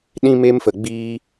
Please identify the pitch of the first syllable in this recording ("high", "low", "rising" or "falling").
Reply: high